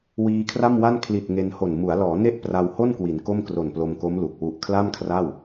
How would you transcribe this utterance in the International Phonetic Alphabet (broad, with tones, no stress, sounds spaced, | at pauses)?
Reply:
w iː˧ kʰ r a˥˩ m w a˥˩ n kʰ l i˨˩ t̚ ŋ e˧ n h o˨˩ n m u˩˦ a̯ l ɔː˩˦ n e˥˩ ʔ p r a˧ w h o˥˩ n k w i˩˦ n k o˥˩ m k r o˨˩ n p l o˧ m k o˦˥ m l u˨˩ k̚ w u˨˩ ʔ kʰ l a˥˩ m kʰ r a˥˩ w